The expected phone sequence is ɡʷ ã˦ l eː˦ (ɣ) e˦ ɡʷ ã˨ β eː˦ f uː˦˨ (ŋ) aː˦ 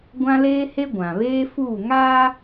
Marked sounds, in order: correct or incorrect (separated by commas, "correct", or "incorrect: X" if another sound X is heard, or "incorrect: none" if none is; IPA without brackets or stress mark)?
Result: incorrect: h, correct